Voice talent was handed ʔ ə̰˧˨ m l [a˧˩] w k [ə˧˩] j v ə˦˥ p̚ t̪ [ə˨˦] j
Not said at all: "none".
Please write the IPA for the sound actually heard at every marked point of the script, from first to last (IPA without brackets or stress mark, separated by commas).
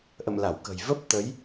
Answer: a˧˩, ə̤˨˩, ə˨˦